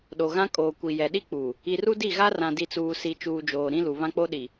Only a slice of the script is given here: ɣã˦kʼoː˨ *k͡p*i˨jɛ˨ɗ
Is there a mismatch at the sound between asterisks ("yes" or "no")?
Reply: yes